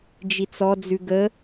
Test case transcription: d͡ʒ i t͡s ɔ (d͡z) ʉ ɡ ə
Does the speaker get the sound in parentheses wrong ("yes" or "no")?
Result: no